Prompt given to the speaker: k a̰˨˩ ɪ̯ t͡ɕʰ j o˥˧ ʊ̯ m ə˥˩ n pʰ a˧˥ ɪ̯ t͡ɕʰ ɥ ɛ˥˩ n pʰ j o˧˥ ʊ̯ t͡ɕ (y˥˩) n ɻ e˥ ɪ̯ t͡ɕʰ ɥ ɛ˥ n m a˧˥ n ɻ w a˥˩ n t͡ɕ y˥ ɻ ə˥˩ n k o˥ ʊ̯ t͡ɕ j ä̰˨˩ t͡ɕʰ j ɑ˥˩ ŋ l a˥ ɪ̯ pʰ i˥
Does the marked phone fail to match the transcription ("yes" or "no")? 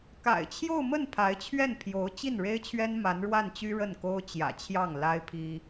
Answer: yes